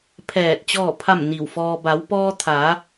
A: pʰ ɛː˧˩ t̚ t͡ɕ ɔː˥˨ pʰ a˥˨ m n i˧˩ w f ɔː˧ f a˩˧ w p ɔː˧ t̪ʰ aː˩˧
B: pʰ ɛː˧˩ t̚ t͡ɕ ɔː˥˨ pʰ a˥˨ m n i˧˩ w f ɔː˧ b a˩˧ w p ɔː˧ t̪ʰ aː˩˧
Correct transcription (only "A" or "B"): B